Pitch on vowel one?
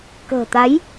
low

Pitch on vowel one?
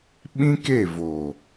high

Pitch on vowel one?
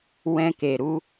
high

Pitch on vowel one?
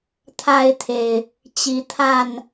high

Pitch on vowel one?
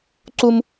high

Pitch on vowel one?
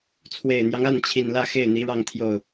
low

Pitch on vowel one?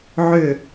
falling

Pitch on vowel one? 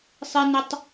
high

